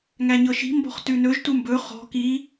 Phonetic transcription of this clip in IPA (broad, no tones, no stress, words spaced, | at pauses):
ŋæɲɤʃi̤ mbɔ̤χtʉnɵʒ tumbɵ χɔ̤ ki